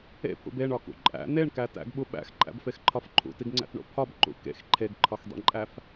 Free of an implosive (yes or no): no